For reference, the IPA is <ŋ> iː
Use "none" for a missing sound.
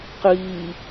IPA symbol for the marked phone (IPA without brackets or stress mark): q